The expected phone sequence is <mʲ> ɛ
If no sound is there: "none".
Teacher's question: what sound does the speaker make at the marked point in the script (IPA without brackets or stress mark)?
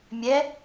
mʲ